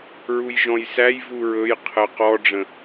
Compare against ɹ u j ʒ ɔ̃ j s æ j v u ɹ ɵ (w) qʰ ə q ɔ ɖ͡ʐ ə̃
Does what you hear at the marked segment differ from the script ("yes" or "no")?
yes